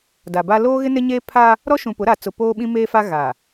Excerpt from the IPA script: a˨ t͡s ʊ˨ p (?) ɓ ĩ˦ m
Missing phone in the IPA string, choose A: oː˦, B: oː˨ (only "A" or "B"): A